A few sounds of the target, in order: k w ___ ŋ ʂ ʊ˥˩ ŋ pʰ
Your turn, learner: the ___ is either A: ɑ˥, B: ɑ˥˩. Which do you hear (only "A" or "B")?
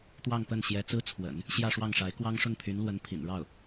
A